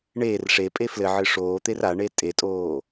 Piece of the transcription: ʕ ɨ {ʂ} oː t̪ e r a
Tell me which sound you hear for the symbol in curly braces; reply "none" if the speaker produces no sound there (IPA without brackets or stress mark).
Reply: ʂ